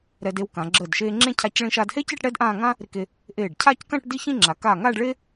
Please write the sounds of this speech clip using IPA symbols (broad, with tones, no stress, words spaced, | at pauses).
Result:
ɾɛ˧de˧wkã˩˧ ɡ͡ǁəː˧˩dʃeː˧ŋ͡ǁẽ˥˧cʰa˧c ɭĩ˧ʃaː˧dhe˥ce˥˧ʈ ɽɛ˥dʔãː˥˧ ŋã˥ | ɾɪ˧ke˧ | ʔeː˧˩ɖcʰaː˥˧ckã˥˧ʈ di˥˧çĩ˥˧ŋ͡ǁa˩˧ kaː˧˩ŋaː˥˧ɖɭe˥